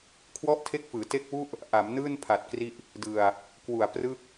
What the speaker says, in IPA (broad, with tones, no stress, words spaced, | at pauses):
kʰwɔ˥˩ʔtʰe˦˥k̚fɯː˩˦ te˦˥k̚wu˥˩ʔ | ʔa˩˦m nɯː˥˩npʰa˨˩t̚kri˦˥ʔ | dɯ˧a̯ | kwu˨˩a̯prɯ˥˩k̚